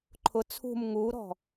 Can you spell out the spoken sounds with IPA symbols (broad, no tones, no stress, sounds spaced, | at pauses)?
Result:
ǃʰ ʊ t͡sʰ ṳ m ŋ u ɾ ɔ̤